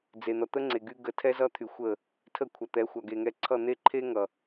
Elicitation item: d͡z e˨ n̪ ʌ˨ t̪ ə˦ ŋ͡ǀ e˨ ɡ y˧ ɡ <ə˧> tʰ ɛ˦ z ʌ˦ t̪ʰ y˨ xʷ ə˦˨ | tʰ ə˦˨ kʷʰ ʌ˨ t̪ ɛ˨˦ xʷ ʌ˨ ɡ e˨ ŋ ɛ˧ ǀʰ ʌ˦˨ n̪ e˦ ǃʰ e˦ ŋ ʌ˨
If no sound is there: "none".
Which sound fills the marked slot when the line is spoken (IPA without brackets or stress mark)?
ə˨